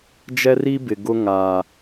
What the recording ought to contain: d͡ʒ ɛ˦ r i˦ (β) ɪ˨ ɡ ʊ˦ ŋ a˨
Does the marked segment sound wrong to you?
yes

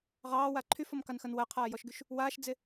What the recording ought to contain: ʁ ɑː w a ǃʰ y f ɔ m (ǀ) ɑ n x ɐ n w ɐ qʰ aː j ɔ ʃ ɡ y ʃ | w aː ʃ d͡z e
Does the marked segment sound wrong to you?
yes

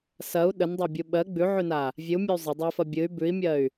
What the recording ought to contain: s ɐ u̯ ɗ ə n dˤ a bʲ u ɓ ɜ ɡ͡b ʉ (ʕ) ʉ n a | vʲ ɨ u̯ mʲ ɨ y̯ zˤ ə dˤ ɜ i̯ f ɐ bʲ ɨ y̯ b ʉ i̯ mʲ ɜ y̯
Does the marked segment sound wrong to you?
no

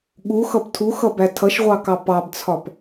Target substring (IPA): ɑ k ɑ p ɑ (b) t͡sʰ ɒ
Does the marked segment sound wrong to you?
no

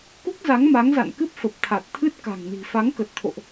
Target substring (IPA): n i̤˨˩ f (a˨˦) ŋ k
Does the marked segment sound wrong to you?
no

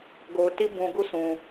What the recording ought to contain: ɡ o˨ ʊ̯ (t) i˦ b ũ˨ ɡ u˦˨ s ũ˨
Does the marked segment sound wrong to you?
no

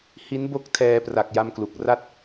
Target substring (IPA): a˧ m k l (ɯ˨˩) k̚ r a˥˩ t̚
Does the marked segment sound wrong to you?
yes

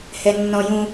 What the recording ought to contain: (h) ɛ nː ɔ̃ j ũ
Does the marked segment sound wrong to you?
no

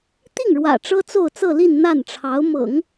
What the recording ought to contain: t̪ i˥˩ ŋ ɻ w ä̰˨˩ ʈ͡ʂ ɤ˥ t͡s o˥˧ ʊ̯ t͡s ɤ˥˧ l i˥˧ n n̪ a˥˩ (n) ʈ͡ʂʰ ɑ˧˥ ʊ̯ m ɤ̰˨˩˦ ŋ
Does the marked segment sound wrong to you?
no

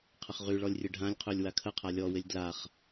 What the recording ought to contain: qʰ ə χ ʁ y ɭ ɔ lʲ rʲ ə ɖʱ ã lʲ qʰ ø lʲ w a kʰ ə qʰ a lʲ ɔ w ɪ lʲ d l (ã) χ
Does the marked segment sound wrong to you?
yes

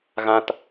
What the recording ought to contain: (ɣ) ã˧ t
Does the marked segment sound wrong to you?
no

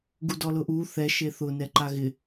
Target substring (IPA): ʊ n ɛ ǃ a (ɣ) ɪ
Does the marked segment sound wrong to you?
no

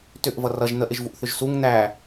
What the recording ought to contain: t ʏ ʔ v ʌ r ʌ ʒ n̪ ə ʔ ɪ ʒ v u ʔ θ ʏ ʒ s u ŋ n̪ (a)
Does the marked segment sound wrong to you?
yes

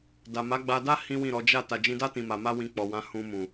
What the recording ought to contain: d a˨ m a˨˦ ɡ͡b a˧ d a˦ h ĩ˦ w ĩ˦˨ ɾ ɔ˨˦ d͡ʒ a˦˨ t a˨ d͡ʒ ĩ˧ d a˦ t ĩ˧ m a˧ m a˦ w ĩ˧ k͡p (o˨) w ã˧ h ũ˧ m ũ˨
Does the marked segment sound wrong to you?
yes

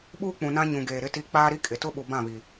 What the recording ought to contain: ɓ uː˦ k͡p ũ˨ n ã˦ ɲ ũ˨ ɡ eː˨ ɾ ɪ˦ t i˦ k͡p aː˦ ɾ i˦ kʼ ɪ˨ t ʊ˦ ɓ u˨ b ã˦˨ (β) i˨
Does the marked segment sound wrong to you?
no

